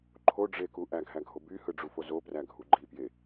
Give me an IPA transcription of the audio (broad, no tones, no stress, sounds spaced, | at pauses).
ǃʰ o ɖ͡ʐ e k u ʔ æ ɡʱ æ ɡʱ o b y h ɯ ɖ͡ʐ u f o z o p r æ ɡʱ u ɡ͡ǃ i p j e